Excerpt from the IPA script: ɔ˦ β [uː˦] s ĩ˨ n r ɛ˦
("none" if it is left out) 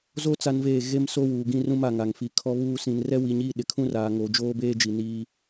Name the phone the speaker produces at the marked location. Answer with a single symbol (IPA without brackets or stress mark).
uː˦